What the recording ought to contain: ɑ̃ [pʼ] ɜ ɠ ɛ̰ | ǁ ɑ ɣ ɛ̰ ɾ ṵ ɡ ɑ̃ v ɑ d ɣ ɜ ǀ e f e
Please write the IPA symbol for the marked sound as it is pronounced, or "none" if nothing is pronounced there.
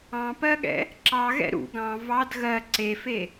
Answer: p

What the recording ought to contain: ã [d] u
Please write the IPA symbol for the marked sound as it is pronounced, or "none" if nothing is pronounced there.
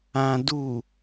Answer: d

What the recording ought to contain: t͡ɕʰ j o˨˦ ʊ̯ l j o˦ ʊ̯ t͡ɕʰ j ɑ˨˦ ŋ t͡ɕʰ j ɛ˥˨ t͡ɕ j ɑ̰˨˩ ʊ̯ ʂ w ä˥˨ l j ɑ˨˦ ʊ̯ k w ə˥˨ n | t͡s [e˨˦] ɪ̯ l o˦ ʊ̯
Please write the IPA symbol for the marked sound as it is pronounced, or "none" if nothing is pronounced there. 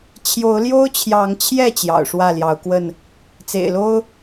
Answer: ḛ˨˩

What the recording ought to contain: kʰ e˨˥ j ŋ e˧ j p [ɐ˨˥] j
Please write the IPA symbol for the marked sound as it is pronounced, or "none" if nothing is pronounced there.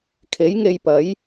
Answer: ɐ˨˥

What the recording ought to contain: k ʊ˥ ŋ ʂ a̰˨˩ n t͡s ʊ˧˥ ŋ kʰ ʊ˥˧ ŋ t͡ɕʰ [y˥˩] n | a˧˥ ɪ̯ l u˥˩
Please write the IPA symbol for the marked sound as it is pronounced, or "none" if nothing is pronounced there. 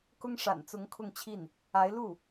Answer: i˥˩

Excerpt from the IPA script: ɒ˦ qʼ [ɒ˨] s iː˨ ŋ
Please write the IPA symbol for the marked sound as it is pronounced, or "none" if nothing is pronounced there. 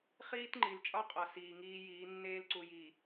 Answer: ɒ˨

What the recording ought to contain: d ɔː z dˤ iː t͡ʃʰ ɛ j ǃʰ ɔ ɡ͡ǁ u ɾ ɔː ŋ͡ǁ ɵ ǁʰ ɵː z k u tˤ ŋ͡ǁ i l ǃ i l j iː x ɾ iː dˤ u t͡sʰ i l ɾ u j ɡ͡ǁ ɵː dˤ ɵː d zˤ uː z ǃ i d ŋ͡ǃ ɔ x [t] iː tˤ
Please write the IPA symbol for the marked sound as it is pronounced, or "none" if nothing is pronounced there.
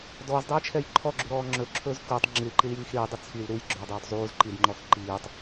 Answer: ǃ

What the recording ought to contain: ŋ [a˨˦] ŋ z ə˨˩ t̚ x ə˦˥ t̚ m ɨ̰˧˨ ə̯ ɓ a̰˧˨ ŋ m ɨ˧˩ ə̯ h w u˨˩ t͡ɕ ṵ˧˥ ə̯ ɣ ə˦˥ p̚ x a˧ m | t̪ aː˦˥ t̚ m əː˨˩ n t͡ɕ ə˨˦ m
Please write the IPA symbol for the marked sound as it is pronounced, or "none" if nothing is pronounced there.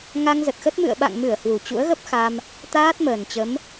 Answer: a˧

